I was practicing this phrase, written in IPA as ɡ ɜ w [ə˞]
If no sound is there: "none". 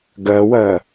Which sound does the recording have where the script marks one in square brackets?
ɜ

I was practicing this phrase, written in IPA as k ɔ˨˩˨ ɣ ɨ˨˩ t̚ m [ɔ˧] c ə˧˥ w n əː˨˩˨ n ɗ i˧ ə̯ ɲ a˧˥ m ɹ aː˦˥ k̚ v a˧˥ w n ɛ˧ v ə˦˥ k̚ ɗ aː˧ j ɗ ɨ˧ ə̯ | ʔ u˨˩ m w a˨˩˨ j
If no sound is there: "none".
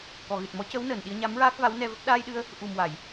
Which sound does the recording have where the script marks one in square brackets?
ɔ˧˥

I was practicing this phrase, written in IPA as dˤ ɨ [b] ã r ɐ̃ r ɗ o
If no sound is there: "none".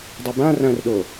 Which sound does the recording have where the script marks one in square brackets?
b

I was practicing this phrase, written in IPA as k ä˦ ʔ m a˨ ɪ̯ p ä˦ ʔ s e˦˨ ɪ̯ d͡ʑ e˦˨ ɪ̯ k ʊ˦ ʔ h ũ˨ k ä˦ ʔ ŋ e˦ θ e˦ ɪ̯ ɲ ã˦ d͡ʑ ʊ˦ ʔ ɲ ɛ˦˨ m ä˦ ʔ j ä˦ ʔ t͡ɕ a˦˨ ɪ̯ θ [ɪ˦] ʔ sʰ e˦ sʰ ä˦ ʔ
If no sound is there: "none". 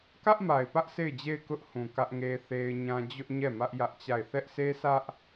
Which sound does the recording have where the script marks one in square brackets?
ɛ˦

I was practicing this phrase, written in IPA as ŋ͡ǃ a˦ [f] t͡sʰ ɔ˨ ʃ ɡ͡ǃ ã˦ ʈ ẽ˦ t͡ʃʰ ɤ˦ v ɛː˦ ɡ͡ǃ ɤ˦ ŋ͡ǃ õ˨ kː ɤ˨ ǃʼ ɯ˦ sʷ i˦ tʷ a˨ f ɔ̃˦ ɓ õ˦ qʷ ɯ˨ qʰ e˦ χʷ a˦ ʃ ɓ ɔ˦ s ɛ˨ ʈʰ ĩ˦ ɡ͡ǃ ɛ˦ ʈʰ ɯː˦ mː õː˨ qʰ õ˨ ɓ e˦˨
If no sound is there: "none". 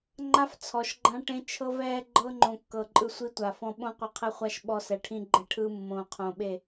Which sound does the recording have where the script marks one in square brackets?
f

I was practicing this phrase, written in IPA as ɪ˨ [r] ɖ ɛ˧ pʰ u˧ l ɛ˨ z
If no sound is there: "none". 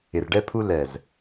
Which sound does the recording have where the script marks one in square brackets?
r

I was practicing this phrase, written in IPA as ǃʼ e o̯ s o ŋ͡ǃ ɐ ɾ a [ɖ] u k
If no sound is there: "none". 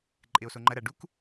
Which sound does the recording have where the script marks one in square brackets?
ɖ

